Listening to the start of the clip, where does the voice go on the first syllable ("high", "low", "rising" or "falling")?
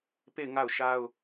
falling